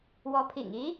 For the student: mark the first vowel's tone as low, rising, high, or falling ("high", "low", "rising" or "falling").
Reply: rising